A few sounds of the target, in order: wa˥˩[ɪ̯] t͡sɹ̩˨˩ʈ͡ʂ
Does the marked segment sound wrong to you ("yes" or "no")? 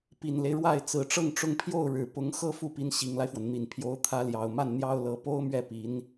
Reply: no